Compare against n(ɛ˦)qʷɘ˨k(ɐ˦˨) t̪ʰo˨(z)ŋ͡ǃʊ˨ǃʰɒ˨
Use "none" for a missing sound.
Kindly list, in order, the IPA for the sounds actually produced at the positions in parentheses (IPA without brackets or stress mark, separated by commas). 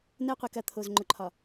ɛ˦, ɐ˦˨, z